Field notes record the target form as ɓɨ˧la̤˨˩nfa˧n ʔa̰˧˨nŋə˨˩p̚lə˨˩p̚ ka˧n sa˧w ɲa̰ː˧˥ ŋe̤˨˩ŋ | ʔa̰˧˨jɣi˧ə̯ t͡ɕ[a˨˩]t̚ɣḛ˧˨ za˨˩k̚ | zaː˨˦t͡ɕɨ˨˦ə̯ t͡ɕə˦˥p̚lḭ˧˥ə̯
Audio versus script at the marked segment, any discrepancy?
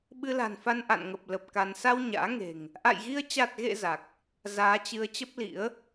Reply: no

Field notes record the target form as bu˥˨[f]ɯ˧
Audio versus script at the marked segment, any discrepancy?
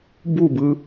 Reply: yes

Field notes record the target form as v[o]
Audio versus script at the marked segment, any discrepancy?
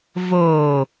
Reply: no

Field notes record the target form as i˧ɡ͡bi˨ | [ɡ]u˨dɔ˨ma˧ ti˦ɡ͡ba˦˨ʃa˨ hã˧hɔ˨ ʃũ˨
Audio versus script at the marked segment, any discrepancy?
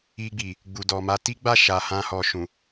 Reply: yes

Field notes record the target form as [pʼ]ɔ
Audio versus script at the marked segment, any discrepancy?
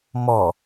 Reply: yes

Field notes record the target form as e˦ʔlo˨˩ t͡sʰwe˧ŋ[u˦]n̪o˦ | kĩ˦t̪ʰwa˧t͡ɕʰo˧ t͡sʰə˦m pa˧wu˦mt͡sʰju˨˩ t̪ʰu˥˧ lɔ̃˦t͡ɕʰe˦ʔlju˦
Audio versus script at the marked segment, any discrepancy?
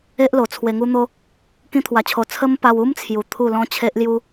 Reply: no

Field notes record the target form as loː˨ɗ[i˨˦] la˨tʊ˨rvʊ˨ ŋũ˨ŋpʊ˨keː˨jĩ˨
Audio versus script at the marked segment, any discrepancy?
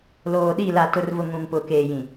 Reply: yes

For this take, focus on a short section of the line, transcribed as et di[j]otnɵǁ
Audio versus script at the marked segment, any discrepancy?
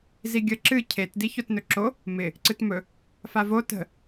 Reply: yes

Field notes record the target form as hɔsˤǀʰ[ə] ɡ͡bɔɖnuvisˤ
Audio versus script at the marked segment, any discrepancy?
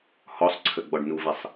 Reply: no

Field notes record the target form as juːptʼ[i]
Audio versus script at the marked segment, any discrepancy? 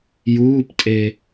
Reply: yes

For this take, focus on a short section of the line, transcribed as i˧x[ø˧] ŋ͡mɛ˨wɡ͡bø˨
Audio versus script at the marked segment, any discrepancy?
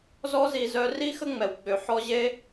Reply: yes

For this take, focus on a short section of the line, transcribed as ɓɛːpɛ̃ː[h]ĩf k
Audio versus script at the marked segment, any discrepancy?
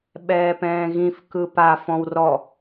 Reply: yes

